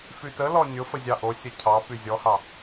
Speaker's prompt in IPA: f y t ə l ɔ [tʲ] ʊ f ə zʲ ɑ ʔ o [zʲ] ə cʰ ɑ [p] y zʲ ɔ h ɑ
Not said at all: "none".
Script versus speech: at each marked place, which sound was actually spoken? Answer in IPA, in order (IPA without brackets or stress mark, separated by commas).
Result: nʲ, sʲ, p